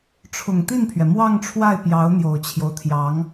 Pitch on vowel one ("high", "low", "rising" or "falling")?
low